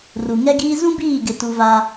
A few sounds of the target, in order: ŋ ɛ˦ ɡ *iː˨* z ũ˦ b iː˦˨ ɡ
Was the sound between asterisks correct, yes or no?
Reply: no